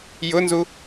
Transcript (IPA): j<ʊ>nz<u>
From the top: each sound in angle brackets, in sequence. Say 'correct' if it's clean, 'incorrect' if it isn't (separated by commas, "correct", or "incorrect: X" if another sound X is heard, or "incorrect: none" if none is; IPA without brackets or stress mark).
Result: correct, correct